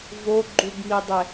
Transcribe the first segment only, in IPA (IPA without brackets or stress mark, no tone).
v